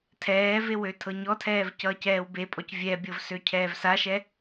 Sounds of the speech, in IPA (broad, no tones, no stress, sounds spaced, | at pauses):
tʰ ɛː v e w ø tʰ ɤ ɲ ɔ tʰ ɛː v c ʌː c ɛː w b e pʼ ɔ c vʲ ɛ bʲ ɤ v s ø cʰ ɛː v s a ʃ ɛ